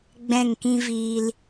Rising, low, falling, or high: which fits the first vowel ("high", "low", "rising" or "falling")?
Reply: falling